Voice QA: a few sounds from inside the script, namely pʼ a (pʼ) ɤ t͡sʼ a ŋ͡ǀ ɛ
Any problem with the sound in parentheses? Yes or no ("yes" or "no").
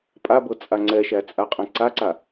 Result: yes